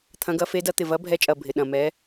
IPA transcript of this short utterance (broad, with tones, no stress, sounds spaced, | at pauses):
t̪ʰ ɐ̃˨˥ ɡ ɐ˨˥ f e˨˥ d ɐ˨˥ t̪ ɪ˨˩ v ɐ˨˥ bʱ ɛ˨˥ t͡ʃʼ ɐ˨˩ bʱ ɪ˨˩ ɗ ɐ̃˨˩ m ɛ˨˥